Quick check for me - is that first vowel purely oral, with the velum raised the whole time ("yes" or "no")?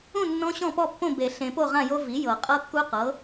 no